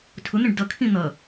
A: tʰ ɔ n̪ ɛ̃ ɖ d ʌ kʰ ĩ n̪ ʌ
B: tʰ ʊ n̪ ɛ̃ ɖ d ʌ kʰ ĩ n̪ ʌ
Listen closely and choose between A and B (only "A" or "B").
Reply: B